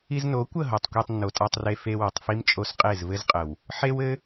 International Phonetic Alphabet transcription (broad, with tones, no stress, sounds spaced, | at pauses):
i˧ z n o˨˦ kʷ ə˦˨ ɦ o˨ tˤ kʷ e˧ tˤ nː o˨ tʼ a˧ tˤ r e˧ f e˧ w o˨ tˤ f i˦ m t͡ʃʼ o˧ s qʼ e˦˨ z v ɘ˦ z qʼ ə˨ w | ħ e˦ w ɘ˦